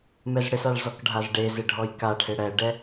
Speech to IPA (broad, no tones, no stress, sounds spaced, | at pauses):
m ɛ z ɽ ɪ s a ɭ z ɔ k ɖʱ a z ɖ e z ɪ ɖʱ ɔ j k a ʈʰ ɪ ɽ ɛ ɖ ɛ